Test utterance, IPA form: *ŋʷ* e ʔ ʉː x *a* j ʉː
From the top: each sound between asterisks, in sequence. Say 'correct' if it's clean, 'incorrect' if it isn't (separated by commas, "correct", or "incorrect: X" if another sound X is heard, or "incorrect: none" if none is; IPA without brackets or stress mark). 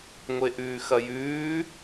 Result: correct, incorrect: ɐ